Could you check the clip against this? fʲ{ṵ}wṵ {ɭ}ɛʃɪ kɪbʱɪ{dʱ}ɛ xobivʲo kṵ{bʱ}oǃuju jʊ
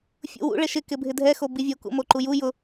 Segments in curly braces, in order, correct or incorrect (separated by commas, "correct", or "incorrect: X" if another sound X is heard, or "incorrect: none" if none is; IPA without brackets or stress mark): correct, correct, correct, incorrect: m